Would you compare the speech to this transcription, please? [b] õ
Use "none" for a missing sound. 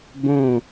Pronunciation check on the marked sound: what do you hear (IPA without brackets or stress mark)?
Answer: b